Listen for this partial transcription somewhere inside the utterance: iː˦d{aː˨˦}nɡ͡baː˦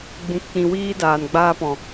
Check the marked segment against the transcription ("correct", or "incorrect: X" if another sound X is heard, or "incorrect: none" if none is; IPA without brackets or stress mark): incorrect: aː˨